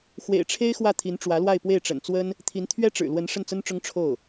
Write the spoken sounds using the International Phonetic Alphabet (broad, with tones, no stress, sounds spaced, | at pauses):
x w ḛ˨˩ ɪ̯ ʈ͡ʂʰ e˥ ɪ̯ x w ä˥˩ t̪ʰ i˧˥ n ʈ͡ʂ w ä˧˥ l w a˥˧ ɪ̯ p w e˥˩ ɪ̯ ʈ͡ʂ ə̰˨˩ n t͡s w ə˥ n | t̪ʰ i˧˥ n t̪ʰ ɥ ɛ˥ ʈ͡ʂ ɻ̩˨˩ l w ə˧˥ n ʂ ə˥˩ n t͡s ə˥ n ʈ͡ʂ ʊ˥ ŋ ʈ͡ʂʰ o˥˩ ʊ̯